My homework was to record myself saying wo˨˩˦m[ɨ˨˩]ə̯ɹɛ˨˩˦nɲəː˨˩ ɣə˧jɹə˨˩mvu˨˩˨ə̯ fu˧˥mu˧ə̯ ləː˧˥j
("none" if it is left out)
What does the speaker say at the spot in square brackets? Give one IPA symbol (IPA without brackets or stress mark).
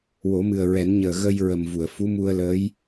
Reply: ɨ˨˩